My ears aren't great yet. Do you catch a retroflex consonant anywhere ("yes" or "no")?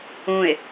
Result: no